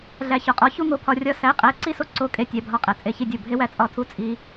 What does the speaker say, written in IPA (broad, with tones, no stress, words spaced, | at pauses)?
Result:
ɮæ˧çɒ˧qʼɒ˧˥˧ çu˥ŋo˧pʰɒ˧ rʲɒ˥ sæ˧˥˧qʼæ˧˥˧ ǀi˥so˥ ǀo˥kʼe˥ tʲæ˧˥˧bʱɒ˥˩qʼæ˧ t͡sʼe˥˩çi˥dʲo˥˩ bʱe˥wæ˥t͡sʼɒ˥˩tʰu˥ t͡sʼi˥